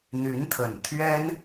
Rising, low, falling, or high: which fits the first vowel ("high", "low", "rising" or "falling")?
rising